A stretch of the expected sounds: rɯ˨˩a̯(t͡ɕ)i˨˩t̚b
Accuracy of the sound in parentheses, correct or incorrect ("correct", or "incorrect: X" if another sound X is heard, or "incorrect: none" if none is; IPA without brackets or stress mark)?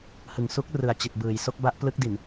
correct